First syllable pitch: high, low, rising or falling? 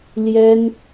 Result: high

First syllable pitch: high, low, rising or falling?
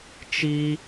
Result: high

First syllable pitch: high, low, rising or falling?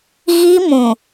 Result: high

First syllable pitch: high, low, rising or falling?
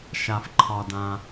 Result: low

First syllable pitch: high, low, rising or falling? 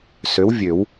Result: rising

